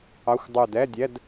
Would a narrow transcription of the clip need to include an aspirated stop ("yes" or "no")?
no